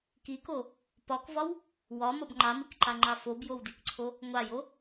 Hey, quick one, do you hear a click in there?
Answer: yes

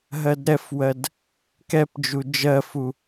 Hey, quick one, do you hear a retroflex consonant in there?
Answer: no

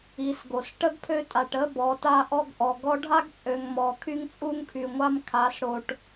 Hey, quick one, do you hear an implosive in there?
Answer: no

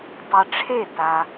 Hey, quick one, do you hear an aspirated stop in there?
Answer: yes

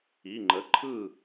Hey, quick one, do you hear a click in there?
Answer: yes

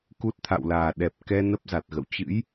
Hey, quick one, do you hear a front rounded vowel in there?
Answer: no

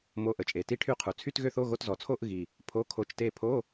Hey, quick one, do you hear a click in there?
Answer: no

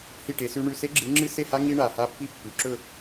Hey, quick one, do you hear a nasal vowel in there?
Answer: no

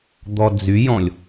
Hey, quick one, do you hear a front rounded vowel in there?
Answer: yes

